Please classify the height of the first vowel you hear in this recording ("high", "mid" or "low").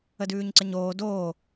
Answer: mid